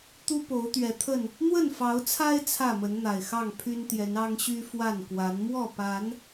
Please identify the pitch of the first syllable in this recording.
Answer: high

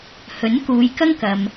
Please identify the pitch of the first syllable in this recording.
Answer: rising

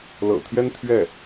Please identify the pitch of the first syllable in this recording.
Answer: low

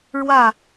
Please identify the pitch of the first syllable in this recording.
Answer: falling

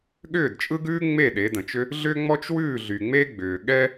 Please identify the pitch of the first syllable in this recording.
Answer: falling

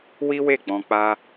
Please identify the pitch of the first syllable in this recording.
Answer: high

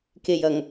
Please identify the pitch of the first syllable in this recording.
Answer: low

